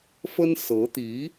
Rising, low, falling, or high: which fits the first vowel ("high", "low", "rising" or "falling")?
high